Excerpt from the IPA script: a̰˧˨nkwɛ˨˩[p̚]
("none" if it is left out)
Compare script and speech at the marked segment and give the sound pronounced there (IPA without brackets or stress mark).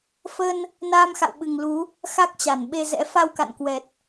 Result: t̚